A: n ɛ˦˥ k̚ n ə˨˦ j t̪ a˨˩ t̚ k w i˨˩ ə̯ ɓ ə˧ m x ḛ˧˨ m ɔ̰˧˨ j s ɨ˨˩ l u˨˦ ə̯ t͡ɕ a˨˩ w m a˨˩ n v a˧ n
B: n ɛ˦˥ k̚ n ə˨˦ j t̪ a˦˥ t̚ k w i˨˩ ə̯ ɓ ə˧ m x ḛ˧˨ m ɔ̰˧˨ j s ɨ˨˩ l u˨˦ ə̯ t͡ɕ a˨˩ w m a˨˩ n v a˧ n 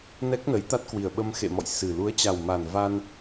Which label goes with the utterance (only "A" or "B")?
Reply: B